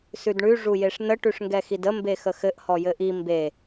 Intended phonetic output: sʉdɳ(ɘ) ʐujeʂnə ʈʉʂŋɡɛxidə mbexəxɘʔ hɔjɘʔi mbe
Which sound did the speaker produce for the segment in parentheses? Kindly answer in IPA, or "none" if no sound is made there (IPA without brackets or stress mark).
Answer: ʉ